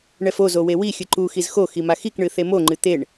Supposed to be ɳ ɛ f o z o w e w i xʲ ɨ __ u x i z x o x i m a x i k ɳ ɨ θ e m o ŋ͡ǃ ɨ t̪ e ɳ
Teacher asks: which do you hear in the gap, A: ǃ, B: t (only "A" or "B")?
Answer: A